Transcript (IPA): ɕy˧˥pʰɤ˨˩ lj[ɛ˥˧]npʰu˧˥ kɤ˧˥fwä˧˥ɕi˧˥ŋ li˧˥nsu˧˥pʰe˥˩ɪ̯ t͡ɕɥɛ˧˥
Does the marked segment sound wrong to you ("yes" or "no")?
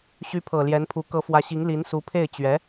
yes